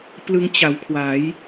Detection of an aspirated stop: present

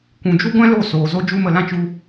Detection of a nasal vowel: present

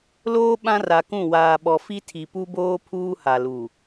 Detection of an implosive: present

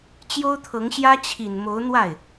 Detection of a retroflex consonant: absent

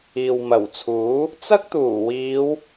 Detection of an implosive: absent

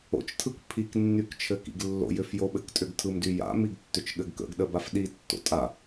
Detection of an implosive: present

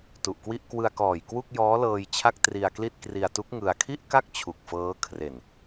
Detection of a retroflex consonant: absent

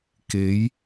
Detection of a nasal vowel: absent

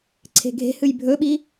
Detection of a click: present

